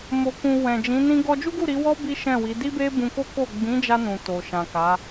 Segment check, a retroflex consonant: absent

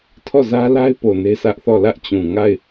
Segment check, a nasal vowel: present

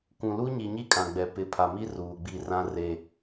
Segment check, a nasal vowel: present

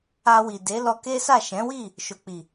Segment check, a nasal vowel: present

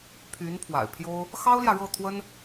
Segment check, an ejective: absent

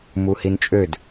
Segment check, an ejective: present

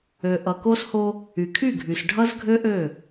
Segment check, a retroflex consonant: present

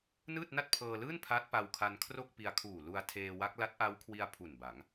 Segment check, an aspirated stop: present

